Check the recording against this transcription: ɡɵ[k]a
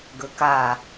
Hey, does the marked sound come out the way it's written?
yes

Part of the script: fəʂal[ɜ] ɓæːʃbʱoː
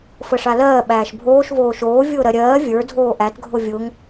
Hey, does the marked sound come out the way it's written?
no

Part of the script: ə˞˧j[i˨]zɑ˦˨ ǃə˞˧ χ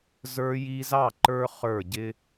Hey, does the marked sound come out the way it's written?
no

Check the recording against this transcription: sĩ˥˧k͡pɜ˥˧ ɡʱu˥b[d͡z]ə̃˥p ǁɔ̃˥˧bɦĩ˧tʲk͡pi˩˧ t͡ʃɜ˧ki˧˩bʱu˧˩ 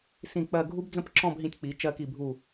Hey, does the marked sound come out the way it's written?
yes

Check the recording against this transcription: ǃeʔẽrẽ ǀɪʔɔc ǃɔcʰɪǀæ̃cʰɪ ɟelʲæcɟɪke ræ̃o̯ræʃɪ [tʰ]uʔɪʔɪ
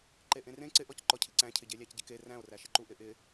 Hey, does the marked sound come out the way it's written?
no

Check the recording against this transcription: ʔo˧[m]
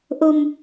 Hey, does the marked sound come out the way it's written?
yes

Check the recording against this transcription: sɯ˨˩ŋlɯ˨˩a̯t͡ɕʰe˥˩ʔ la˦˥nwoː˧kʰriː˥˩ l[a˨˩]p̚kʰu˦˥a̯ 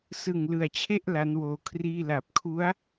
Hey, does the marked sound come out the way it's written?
yes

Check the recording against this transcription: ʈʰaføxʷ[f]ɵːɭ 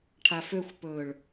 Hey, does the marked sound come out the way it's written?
no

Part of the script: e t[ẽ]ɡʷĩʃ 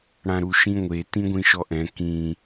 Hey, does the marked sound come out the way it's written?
no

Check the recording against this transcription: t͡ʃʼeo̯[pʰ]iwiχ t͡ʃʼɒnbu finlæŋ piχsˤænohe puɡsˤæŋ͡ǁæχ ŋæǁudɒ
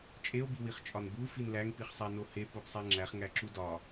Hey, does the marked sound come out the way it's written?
no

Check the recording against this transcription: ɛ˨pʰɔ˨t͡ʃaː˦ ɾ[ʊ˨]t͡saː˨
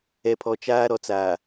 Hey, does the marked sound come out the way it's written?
no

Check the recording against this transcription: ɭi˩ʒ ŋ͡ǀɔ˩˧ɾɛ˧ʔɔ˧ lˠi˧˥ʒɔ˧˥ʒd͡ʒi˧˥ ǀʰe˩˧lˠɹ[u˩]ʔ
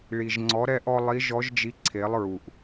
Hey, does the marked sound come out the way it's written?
yes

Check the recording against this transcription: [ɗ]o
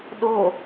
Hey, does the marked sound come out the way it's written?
yes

